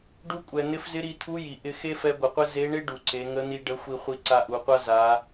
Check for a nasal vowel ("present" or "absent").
absent